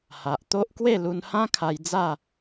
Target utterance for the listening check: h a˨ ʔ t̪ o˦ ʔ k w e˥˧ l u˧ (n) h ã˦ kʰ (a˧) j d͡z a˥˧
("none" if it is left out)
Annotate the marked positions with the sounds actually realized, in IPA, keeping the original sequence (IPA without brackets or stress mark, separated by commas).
n, a˧